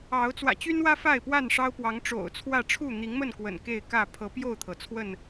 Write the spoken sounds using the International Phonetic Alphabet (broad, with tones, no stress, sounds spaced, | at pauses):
ɑ˨˦ ʊ̯ t͡s w ä̰˨˩ t͡ɕ y˦ n w ä˦ f a˥˨ ɪ̯ p w a˥˨ n ʂ ɑ˦ ʊ̯ p w ɑ˨˦ ŋ ʈ͡ʂ o̰˨˩ ʊ̯ t͡sʰ w ä˥˨ ʈ͡ʂʰ u˥˨ n̪ i˨˦ ŋ m ə˥˨ n k w ə̰˨˩ n k e˥˨ ɪ̯ k ä˥˨ pʰ ɤ˨˦ p j o˥˨ ʊ̯ t̪ʰ ɤ˩ t͡sʰ w ə˥˨ n